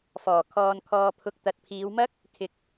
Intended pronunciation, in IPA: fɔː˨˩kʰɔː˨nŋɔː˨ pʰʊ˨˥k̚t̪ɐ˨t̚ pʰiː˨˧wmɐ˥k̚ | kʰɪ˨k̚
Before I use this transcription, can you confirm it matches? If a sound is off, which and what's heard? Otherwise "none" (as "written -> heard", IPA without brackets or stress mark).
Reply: ŋ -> kʰ